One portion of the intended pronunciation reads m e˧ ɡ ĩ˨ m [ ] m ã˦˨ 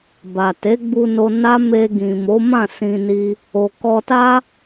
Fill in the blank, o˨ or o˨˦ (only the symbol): o˨˦